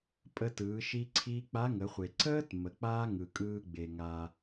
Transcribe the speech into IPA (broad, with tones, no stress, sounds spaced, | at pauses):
pʼ ə˧ t ɯː˩˧ ʃ i˧ ǀʰ iː˧ k͡p a˧˥ ŋ ə˩˧ χʷ e˩ ǀ əː˥ t m ə˩ k͡p aː˥ ŋ ɯ˩ kʼ ɯː˧ ɡ͡b e˩ ŋ aː˩